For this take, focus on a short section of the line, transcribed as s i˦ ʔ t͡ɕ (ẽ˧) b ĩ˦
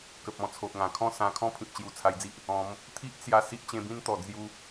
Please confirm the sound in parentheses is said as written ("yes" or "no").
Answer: yes